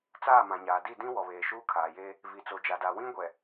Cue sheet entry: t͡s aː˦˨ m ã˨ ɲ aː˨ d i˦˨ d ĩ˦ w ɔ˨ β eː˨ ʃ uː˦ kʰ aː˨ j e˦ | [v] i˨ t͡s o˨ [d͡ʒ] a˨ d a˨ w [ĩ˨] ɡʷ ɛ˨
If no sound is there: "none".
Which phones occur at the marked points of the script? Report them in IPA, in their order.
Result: v, d͡ʒ, ĩ˦

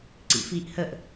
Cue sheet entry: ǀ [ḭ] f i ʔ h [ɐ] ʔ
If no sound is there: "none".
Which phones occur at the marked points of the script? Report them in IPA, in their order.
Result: ḭ, ə

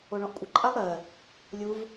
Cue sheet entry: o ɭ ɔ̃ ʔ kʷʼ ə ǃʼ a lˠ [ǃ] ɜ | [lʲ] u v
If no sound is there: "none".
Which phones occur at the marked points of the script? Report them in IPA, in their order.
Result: ɾ, lʲ

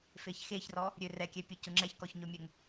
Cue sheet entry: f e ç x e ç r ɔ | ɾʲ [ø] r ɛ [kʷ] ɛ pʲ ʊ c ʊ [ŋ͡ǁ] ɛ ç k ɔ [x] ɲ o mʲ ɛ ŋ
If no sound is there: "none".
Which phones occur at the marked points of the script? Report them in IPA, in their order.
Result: ø, kʲ, ŋ͡ǁ, ç

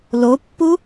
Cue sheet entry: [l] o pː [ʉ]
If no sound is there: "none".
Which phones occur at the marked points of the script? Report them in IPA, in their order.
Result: l, u

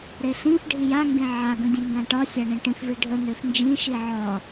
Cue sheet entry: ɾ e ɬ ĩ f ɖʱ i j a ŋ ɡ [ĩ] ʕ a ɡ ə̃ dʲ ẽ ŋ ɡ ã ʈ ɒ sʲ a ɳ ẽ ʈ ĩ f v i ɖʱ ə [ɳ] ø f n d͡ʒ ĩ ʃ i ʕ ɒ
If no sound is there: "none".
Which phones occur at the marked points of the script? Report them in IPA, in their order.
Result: ẽ, n

